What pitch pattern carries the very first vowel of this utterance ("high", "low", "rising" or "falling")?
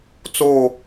falling